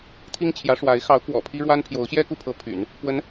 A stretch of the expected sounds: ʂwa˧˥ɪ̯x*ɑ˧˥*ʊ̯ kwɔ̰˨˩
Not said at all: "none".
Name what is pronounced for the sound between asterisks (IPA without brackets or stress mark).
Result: ɑ˧˥